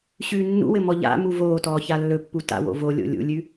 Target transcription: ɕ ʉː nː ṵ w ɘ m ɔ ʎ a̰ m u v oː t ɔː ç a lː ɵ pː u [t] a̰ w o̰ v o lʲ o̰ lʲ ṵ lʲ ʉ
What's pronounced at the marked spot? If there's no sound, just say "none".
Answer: t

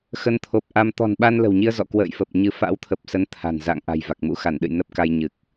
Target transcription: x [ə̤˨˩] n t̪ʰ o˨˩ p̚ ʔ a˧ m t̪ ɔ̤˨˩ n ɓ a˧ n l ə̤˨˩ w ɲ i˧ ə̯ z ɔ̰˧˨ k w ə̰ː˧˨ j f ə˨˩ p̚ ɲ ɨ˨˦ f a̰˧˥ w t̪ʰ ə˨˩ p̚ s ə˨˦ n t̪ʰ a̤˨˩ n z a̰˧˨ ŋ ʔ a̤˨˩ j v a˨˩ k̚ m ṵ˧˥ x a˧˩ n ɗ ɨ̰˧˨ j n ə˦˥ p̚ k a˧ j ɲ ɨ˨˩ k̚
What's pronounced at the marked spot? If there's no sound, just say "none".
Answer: ə˧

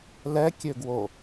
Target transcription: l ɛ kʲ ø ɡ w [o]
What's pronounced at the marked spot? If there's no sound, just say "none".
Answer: o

